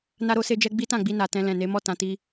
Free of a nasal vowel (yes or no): no